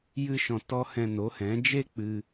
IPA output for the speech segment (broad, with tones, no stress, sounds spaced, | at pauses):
j ɨ˧ ʃ ɔ̃˨ t ɔ˧ h ɛ̃˧ n o˨˦ h ɛ̃˨˦ d͡ʒ e˦ k͡p ɨ˧